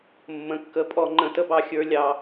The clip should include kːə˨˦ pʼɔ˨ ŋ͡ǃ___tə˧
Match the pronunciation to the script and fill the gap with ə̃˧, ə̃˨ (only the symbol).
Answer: ə̃˨